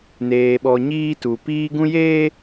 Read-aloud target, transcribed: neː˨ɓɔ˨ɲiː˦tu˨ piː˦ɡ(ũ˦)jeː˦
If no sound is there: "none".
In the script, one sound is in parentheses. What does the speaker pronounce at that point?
ũ˦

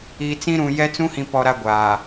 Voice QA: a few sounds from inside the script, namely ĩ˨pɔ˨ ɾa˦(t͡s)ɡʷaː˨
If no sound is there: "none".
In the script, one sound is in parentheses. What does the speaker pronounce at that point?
none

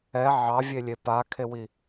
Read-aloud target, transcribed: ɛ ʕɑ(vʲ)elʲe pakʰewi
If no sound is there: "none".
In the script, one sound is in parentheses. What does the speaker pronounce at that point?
vʲ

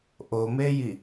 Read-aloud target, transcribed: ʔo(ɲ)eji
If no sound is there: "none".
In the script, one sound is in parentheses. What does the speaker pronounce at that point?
m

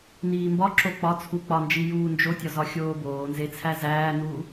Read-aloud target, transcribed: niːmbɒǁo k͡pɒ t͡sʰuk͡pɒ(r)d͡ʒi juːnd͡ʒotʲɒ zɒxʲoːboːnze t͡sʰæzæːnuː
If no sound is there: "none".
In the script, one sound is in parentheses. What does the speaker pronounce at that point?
n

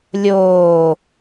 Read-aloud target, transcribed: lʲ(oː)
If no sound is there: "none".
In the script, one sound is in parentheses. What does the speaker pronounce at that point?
oː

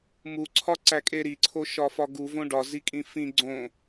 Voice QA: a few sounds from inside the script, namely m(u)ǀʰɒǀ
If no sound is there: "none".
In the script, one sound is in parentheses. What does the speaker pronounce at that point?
u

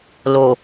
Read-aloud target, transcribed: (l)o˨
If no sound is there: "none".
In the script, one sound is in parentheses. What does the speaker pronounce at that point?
l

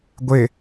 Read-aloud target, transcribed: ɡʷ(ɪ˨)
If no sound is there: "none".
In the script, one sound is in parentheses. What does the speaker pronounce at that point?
ɪ˨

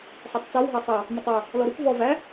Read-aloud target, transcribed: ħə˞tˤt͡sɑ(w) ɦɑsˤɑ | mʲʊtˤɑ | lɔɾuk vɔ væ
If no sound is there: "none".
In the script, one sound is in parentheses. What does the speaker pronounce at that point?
w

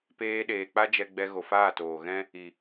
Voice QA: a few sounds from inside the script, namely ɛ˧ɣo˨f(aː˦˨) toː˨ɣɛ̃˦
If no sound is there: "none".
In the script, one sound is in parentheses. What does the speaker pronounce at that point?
aː˦˨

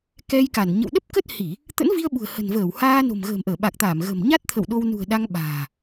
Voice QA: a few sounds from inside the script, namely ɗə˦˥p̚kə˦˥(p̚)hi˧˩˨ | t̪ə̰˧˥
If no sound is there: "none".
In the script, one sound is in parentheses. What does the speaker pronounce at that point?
t̚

